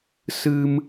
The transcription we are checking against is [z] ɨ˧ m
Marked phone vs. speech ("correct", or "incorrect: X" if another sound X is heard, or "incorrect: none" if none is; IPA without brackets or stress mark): incorrect: s